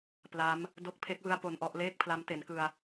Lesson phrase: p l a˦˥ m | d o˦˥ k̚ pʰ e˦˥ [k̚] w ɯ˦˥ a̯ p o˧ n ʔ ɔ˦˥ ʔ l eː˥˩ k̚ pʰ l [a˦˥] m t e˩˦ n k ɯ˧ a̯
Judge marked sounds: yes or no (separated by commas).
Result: yes, yes